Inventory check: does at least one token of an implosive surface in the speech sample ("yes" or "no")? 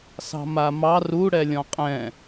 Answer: no